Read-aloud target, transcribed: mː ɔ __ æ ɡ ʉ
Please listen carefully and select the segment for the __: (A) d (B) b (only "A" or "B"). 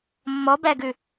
B